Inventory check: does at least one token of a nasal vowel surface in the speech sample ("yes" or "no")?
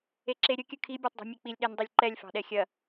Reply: no